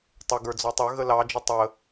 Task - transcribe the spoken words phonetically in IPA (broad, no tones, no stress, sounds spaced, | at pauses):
tˤ ə ɡ ə˞ d͡z ɔ tˤ ə˞ ɣ ə l ɑ d͡ʒ ə tˤ ə